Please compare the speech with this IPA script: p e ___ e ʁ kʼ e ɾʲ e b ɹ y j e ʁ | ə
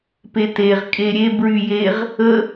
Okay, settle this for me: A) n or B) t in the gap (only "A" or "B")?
B